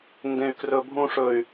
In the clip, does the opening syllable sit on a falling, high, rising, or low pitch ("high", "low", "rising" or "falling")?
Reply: high